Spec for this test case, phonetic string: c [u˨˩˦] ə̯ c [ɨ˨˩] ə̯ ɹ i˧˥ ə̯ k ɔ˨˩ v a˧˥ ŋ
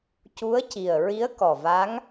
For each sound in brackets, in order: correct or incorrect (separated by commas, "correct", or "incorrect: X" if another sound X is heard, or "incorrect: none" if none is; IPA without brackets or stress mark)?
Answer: incorrect: u˧˥, incorrect: i˨˩